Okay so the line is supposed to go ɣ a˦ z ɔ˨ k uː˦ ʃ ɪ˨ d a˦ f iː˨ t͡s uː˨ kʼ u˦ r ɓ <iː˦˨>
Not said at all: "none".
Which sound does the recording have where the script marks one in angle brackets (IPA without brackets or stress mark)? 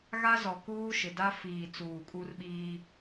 iː˦